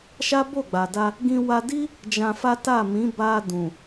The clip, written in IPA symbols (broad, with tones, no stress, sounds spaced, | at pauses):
ʃ a˦ b o˦˨ ɡ͡b a˨ d a˧ | ɡ ĩ˧ w a˧ d i˦ | d͡ʒ ã˧ f a˦ t a˦˨ m ĩ˨˦ b a˧ d ũ˨